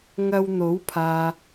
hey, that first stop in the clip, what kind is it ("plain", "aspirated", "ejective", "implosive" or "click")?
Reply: aspirated